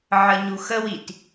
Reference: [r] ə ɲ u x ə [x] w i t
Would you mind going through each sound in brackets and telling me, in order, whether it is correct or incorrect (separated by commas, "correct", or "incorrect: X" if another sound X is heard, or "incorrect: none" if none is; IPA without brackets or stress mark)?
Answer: incorrect: ʕ, incorrect: none